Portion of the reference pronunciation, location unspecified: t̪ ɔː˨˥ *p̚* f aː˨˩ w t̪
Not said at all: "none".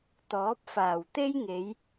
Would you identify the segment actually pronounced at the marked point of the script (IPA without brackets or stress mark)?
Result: p̚